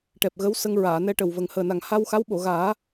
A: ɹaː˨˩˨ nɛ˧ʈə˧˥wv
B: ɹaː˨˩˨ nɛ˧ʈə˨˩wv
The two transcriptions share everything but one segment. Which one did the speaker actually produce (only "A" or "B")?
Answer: B